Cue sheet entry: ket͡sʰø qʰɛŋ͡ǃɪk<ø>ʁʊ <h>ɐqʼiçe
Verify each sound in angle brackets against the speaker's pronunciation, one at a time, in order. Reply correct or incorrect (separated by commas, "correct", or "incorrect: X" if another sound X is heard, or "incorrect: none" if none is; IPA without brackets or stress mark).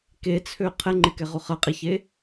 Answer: incorrect: ɛ, incorrect: χ